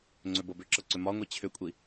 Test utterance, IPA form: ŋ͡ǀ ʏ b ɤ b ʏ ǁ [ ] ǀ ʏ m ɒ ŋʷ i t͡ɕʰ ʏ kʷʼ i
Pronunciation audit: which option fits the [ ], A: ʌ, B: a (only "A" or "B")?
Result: A